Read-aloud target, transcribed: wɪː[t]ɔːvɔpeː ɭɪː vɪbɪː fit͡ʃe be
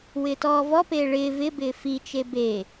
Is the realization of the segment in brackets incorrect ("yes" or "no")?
no